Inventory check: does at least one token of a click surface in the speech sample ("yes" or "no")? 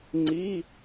yes